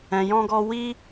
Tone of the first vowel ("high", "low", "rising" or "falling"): low